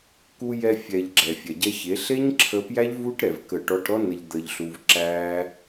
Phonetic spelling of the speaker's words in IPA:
k u˧ j ɛ˧ fʲ ɛ˨ ʎ ɡ͡ǁ ɛ˨ fʲ ɛ˨ ɟ ɛ˧ ç e˨˦ ɬ e˦ ɲ ǁʰ ə˧ p j æ˦ ʎ v u˦ ʈ ɾ ɛ˧ v k ə˦˨ ʈ ɔ˦ ʈ ɾ ɔ˦ n ə˧ ʎ d̪ ə˧ ʎ ɬ u˧ v ǁ æ˦

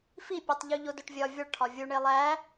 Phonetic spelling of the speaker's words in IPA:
f i pʲ e tˤ ʎ u ʎ o d o ʈ vʲ ɒ vʲ ɒ ɭ ʈʰ ɒ vʲ u ɳ e lˠ æ

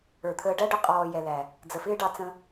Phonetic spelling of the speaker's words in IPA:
ə˞˨ t̪ʰ əː˧ ɖ æ˦ ɖ ʊ˧ qʼ ɔː˨ j ɛ˨ l æ˨ | d͡z ə˨ f ɪː˦ ɖ ɑ˧ t͡s ə̃˧

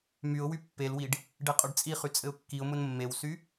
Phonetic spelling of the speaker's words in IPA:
m y ʊ̯ w y pː e l w i ɖ | ɖ e qʼ ʊ ɖ t͡sʼ i χ y t͡sʼ ɘ ʊ̯ kː i ʊ̯ m ʊ n mː e w s y

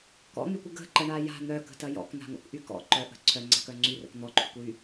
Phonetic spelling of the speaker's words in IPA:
k ɔ̰ n̪ y kʷ ə ɡ ə̤ ǃ ə ɳ a j a̤ n̪ œ k ə̤ t ɐ j ɔ̰ k n̪ a̤ ŋ o̰ k ʔ y k ɔ̰ ǃ œ ʔ ə̤ ǀʰ œ ŋ͡ǀ a̤ k œ ŋ͡ǀ y r ə̰ k n̪ ɔ ǃʰ y kʷ j y

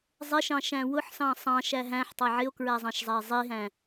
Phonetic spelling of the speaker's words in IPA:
zˤ ɪ ʃ ɑ̃ ʃ æ̃ w ʊ ħ s ɑ̃ sˤ ɑ̃ ʃ æ ɦ æ̃ ħ tˤ æ ʕ ɪ o̯ k ɹ æ zˤ ɑ̃ ʃ zˤ æ e̯ zˤ i ɦ æ̃

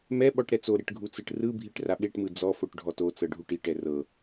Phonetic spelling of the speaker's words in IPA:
m ɛ ɓ ɔ ʈ ɾ ɛ t͡s o ɾ e ʈ ɡʱ u t͡s ɯ ʈ r ɯ bʱ i ʈ r a ɓ e ʈ m ɯ d͡z ɔ f o ʈ ɖʱ ɔ t o t͡s ɤ ɖʱ u ʈ i ʈ ɛ r ɤ

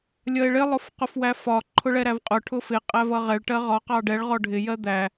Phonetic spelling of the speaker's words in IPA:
lʲ ʌ e̯ ɭ ɪ lˠ ʊ f q ʊ f w æ f ɒ ǃʰ ʊ ɭ ɛ ɾ æ v qʼ ʊ ʈʰ ʊ f ɪ qʼ æ v ʌ ʁ ɛ ɭ ʈ ɜ ʁ ɒ q ɑ ɖ ɛ ɭ ʁ ɔ ɖʱ ɪ j ɜ d̪ æ

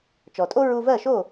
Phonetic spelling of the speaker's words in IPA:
t͡ʃ ɔ˩ tʼ o˥ ɹ u˧ v ɜ˥˩ ʃ o˥˩

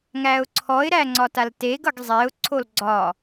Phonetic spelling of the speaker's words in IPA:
ŋ æ ʊ̯ ǀʰ ɔ ɪ̯ ɾ æ ŋ͡ǀ ɒ t a l t e ɡ ʌ ɡ zˤ e ʊ̯ ǀʰ o l ɡ͡ǀ ɒ

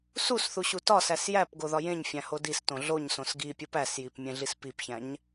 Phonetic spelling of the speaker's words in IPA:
s u s θ u ɕ u t ɒ s æ s j æ p ɡ o ð ɒ j ẽ ɲ fʲ æ̃ h o d i s t õ ɮ o ɲ s õ s ɡ i pʲ u p æ s j i p mʲ ẽ ɮ i s p i p ç æ̃ ɲ

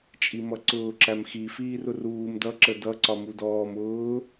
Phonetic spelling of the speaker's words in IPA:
t͡ʃʼ i m ʌ ǀ ʊː ǁ æ m x i f iː r ʊ r uː m d ʌ ǁ ə d ʌ ǀ ɒ m u d ɔː m ʊː

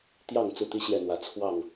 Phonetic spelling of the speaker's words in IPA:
t̪ j ɑ˥˨ ŋ t͡s u˥˨ t̪ i˦ ɕ j ɛ˥˨ n̪ w ä˨˦ t͡sʰ w ɑ˥˨ ŋ

